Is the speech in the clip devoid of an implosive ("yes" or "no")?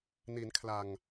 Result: yes